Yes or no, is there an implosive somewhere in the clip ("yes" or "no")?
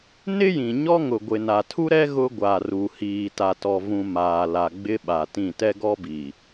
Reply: yes